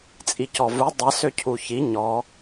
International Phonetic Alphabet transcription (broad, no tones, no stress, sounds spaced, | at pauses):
t͡sʼ i c ɔ v u dˤ ə s ø cʰ u ç i ɲ ɔ